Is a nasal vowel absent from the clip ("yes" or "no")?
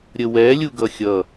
yes